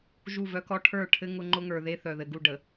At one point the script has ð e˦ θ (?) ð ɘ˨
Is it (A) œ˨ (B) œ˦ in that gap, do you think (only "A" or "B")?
A